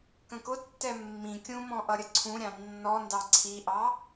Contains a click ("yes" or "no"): yes